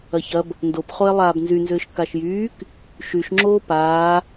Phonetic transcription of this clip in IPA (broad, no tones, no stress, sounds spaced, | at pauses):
ɐ ç ɐ b | n d o p χ o e̯ lˠ aː b n z y n z ʏː ʃ k a ʃ j yː k | ʃ y ʃ ŋ͡ǁ oː p aː